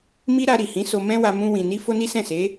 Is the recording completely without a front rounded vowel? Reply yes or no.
yes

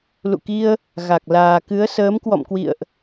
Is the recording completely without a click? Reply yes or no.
yes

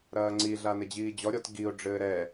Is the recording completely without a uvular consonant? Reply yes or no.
yes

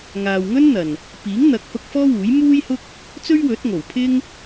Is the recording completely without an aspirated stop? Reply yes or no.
no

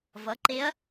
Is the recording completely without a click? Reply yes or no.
no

